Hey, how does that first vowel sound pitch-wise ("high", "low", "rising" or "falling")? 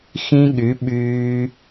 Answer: high